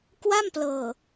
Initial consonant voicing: voiceless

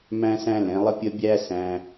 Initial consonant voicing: voiced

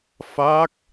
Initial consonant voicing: voiceless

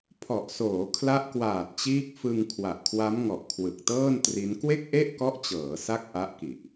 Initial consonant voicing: voiceless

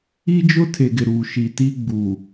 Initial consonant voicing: voiced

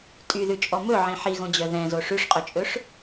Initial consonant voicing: voiceless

